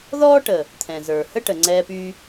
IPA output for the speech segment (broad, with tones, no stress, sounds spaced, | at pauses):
ð ɔː˦ ʈ ə˨ | t̪ʰ ɛ̃˨ z ə˞˨ h ə˦ ʈ ə˨ ŋ͡ǀ ɛː˧ p yː˧